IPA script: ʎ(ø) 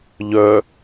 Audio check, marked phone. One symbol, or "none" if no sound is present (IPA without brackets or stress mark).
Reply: œ